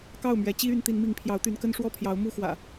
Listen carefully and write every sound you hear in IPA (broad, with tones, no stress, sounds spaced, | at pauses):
k ɑ˥˨ ʊ̯ m ɥ ɛ˨˦ t͡ɕ i˦ y˨˦ n t̪ i˨˦ n m i˨˦ ŋ pʰ j ɑ˨˦ ʊ̯ t̪ y˨˦ n k ə˦ n ʂ w ɔ˥˨ pʰ j ɑ˨˦ ʊ̯ m u˥˨ x w ä̰˨˩